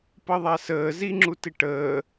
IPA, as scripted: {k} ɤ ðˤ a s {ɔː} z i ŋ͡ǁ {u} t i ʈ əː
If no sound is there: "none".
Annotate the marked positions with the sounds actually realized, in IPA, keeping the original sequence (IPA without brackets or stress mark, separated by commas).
p, əː, u